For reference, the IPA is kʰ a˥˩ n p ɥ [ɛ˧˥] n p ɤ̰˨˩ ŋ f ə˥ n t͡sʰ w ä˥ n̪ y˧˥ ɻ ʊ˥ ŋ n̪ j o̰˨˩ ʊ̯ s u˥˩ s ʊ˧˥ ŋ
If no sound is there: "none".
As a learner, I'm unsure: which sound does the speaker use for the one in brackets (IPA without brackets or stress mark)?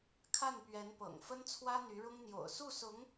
ɛ˧˥